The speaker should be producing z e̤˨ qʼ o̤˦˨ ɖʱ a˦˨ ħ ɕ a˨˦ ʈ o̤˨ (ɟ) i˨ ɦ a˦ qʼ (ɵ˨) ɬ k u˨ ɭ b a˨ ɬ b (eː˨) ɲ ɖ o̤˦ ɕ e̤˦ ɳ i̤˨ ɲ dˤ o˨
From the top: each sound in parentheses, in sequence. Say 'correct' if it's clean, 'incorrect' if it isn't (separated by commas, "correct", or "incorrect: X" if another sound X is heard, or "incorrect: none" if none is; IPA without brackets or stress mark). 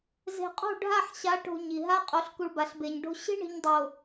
incorrect: ɲ, incorrect: o˨, incorrect: e˨